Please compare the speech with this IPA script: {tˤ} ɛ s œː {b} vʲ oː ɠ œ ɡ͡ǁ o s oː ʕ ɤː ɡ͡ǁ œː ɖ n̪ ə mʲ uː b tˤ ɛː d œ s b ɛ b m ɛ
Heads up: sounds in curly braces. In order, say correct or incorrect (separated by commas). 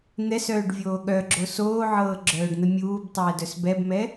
incorrect, incorrect